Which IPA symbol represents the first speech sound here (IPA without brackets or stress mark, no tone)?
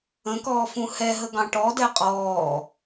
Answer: ə̃